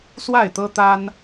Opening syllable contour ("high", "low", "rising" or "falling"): falling